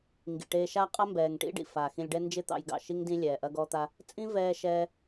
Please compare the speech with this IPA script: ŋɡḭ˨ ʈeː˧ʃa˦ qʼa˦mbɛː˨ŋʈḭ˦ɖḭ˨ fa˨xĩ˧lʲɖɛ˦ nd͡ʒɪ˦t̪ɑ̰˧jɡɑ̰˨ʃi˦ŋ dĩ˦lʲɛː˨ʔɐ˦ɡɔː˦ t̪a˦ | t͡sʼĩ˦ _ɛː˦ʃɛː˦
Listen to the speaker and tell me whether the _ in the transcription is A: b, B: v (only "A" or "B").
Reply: B